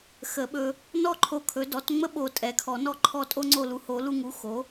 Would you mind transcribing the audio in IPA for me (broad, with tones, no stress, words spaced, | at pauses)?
xə˨˩˦ɓɵ˧ | nɔ˥˨ǃʰo˧kʰɵ˩˥ dɔ˩˥tŋ͡mə˥ ɓo˧ tʼɛ˩˥kʰɔ˨˩˦ nɔ˥˨ǃʰɔ˥˨ tʼo˥ŋ͡ǀo˥˨lu˧ ho˨˩˦lu˧ŋu˩˥ xo˩˥